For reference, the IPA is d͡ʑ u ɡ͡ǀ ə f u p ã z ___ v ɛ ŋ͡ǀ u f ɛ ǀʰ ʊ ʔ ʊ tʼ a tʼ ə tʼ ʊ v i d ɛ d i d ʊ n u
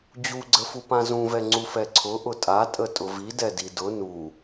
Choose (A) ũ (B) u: A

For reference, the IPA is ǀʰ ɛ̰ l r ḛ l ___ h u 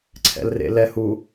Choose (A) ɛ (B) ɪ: A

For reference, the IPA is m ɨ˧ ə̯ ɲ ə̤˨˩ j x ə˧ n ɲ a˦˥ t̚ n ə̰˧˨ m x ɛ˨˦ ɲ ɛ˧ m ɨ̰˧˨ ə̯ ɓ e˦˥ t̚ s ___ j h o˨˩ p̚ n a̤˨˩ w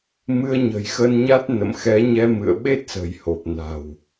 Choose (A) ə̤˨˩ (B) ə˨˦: A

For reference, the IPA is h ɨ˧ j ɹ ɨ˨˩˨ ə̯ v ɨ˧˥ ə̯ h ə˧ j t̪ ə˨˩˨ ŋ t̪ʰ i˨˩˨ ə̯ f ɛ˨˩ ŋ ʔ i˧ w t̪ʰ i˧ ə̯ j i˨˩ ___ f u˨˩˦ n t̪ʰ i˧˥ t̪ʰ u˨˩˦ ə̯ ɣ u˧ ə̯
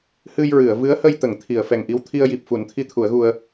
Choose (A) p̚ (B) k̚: A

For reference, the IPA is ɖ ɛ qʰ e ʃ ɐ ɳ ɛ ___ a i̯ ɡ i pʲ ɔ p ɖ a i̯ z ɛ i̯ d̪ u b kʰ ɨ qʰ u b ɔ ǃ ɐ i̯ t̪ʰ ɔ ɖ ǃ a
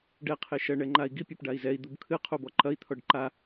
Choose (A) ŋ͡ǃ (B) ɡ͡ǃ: A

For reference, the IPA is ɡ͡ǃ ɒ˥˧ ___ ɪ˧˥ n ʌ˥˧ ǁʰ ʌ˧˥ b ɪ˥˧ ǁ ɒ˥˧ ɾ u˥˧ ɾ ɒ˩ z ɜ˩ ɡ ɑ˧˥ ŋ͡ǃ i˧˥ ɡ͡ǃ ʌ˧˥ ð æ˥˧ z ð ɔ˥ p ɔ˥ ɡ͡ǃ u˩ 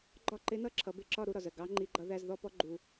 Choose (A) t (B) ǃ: B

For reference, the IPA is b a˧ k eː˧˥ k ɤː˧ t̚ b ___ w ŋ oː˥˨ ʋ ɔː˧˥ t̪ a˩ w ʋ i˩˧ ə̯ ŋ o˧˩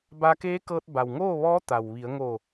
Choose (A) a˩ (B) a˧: A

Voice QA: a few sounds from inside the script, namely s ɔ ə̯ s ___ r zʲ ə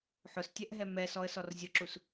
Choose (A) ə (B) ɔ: B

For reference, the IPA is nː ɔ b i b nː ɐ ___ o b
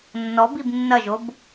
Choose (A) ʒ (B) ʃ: A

